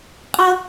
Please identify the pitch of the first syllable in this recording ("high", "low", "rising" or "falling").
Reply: high